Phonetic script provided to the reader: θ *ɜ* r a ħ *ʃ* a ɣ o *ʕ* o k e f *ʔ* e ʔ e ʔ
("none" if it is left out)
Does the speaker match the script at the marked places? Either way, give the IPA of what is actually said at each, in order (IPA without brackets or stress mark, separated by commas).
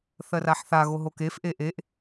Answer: ɜ, θ, ɦ, ʔ